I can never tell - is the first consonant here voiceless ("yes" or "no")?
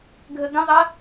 no